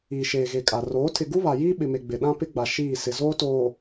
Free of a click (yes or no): yes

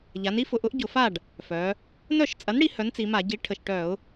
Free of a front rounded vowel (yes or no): no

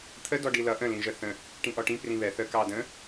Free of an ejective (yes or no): yes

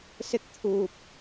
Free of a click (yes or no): yes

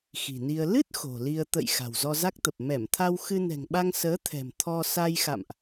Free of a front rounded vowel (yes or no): yes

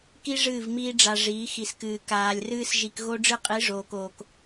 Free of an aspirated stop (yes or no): yes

